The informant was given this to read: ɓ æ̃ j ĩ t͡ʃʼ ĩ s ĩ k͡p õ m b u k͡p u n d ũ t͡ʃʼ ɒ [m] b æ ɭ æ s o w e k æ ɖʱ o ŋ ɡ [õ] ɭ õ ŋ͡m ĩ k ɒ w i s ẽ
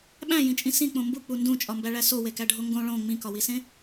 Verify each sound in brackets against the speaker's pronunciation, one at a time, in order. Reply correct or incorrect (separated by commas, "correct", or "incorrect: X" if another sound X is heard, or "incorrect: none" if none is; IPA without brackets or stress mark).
correct, correct